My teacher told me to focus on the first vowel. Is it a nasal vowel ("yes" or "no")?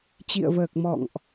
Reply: no